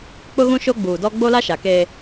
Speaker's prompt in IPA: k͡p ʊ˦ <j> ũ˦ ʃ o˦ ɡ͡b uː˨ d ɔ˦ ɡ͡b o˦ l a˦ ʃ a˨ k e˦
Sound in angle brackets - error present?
yes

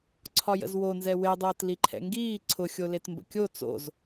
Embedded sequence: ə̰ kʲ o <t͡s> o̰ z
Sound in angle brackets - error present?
no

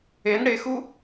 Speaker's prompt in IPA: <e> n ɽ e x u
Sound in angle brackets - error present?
no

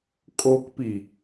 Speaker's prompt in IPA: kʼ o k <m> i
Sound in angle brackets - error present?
yes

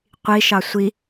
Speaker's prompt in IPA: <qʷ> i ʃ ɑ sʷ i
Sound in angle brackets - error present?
no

